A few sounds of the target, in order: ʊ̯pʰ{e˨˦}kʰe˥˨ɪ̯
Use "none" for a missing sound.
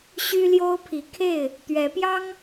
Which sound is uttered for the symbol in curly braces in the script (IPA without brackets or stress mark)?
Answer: i˨˦